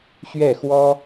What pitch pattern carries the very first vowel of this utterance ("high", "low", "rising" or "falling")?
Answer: falling